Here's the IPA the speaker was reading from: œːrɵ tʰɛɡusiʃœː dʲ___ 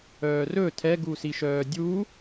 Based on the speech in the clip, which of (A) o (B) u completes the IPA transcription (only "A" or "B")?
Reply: B